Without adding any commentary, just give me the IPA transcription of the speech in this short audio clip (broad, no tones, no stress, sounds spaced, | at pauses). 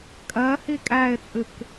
kʼ ɜ h i kʼ æ ɪ̯ t͡sʼ ɨ k